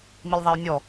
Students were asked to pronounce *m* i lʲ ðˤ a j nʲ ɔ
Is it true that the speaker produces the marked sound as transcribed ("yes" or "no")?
yes